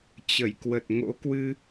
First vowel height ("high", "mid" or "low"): mid